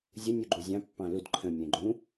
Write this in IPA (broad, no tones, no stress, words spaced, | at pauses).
zʲə nʲuɡ͡ǃuzʲɑ̃ pːɑ̃lud ǃʰə̃ mʲɛ̃ɡ͡ǃũ